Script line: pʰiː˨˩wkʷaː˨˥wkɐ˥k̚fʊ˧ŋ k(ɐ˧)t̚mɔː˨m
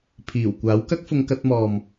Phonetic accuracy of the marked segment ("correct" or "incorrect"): correct